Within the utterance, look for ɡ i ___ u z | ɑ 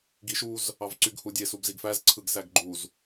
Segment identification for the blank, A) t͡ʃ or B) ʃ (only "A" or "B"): B